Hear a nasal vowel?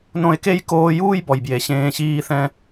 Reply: yes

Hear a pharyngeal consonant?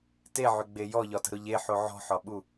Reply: yes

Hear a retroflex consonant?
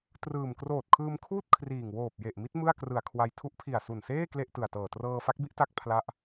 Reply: no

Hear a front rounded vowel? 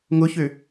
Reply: yes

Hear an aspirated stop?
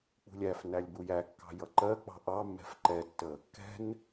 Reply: no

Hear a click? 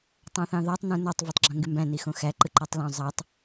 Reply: yes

